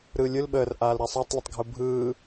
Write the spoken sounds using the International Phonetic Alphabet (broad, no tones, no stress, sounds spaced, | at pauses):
ɾ ɯ lʲ ɯ l ɓ əː r ʔ aː l ɾ a sˤ a tˤ lʲ ə tˤ ɡʱ u bʱ ɯː